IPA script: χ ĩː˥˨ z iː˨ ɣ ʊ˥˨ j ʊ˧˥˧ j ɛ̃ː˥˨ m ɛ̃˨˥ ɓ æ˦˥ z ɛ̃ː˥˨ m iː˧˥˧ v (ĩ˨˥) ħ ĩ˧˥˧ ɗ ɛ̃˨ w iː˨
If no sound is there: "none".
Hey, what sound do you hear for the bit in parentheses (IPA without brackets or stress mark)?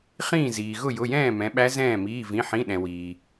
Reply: ĩ˧˥˧